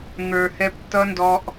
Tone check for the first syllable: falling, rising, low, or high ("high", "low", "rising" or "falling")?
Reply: low